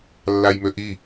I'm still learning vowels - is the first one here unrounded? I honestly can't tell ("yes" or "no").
yes